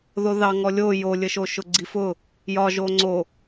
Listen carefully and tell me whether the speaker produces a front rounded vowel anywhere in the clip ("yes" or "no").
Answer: no